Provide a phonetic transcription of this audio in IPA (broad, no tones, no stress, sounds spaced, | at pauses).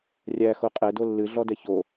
rʲ æ x o qʼ ɛ d o lː ɨ ɮ ɔ d ɛ ç o